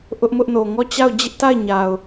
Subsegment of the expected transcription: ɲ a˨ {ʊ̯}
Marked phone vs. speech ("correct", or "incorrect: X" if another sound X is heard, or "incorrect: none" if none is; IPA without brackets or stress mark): correct